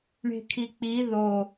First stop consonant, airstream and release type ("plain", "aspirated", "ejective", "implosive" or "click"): aspirated